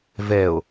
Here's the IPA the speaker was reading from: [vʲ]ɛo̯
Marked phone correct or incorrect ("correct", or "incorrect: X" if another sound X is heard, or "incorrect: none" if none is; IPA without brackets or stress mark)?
incorrect: v